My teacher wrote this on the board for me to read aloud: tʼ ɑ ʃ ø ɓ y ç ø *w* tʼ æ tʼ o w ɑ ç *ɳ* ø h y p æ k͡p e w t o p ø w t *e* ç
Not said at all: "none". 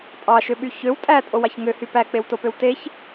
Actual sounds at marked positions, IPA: w, ŋ, e

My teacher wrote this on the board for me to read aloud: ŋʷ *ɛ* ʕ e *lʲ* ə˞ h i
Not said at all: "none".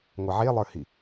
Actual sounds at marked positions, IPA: ɛ, lˠ

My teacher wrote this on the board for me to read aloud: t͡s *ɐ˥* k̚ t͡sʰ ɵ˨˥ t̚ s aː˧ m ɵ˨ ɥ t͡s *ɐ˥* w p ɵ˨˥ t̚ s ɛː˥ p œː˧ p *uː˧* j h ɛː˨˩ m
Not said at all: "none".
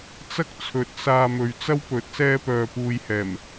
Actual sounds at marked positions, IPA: ɐ˥, ɐ˥, uː˧

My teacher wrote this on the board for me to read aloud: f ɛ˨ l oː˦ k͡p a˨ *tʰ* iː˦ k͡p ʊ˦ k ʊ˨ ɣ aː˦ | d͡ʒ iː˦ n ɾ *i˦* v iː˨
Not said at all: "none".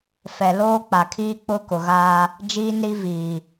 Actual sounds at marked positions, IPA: kʰ, i˦

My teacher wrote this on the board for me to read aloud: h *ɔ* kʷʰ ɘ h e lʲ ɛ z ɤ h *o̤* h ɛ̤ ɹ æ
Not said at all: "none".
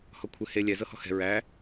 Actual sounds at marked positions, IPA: ɔ, ɔ̤

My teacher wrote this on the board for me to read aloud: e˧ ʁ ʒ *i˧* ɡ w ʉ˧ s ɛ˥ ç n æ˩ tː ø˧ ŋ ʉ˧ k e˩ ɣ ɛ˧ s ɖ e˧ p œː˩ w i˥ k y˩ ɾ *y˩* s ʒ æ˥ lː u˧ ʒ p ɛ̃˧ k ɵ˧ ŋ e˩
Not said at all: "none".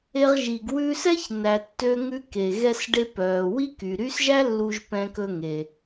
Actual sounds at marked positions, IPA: i˩, y˥

